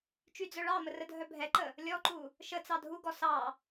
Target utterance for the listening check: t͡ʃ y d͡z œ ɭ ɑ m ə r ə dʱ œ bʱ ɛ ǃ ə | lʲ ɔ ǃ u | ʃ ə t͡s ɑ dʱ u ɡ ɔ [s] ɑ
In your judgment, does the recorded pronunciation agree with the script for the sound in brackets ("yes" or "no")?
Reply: yes